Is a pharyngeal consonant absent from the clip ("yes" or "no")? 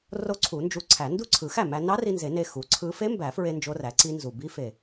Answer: yes